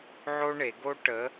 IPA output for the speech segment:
ʕ o˥ ɳ e˩˧ ɡ o˥ ʈ ə˨˥

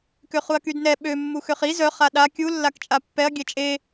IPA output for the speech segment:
k ø χ u ɐ̯ k y d n ɛ ɓ ø mː u x ø χ i z œ χ a ɗ a kʲ u lː a k t͡ʃʼ a pː ɛ ɐ̯ ɡʲ ɛ t͡ʃʼ e

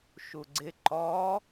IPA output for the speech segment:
ʃ u ɡ͡ǀ ɪ ǃ ɔ

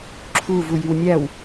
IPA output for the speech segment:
ǁʰ u v u j y w nʲ æ w

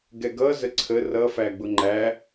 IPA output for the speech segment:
ɡ ɛ ɡ ʌ z ə ǀʰ ə r ʌ f æ ɡ͡b ʊ ŋ͡ǃ æ

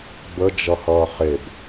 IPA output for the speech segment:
b ə d͡ʒ ʌ h ʌː χ e b

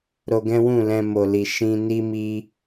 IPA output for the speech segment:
ɾ o˧ ɡ ɛ̃˦ w ũ˦˨ l ɛ̃˧ m o˨ l i˨ ʃ ĩ˧ n i˦ m i˦

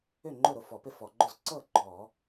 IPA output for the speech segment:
ʏ˥˩ ŋ͡ǃ ʊ˥˩ ɾ ʊ˥˩ f ɔ˧˩˧ p ɪ˥˩ f ɔ˧˩˧ ɡ͡ǃ ʊ˥˩ z ǀ ɤ˥˩ ɡ͡ǃ ɔ˧˩˧

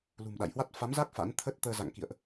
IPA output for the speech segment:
l ṳ˨˩ m ɗ a̰˧˨ j h w a˦˥ t̚ f a˨˦ m z a˦˥ k̚ f a̰˧˥ n t̪ʰ ə˦˥ t̚ t̪ əː˧ z a̰˧˨ ŋ k ḭ˧˨ ə̯ ʔ

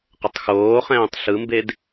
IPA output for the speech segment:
q ə tˤ x oː χ ɛ̃ː tˤ ɬ ɯ m b e d

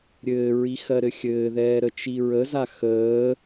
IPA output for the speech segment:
ɾʲ ɘː ɹ i x ɜ ɾ ɘ xʲ ɘː ð ɛː ɾ ə t͡ʃ i ɹ ə z a x əː

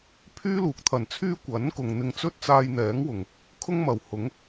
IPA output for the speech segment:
pʰ yː˥ l uː˨ k̚ t̪ʰ ɐ˨˩ n t͡sʰ yː˥ kʷ ɐ˨˥ n k ʊ˨ ŋ n̪ ɪ˧ ŋ t͡s ɵ˥ t̚ t͡s aː˧ j n̪ ɛː˨˥ ŋ w ʊ˨˩ ŋ | kʰ ʊ˥ ŋ m ɐ˨˩ w h ʊ˨˥ ŋ

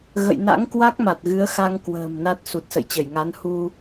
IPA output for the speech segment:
ɣ ə̰˧˨ j n a̰˧˥ ŋ k w a˦˥ k̚ m a˨˩ t̚ ɣ ɨ˨˦ ə̯ x a˧ ŋ k w ə̤ː˨˩ m n a˦˥ t̚ s u˨˩ t̚ s ə̰˧˨ j t͡ɕ ə˧˩ j ŋ a˨˦ n h u˧

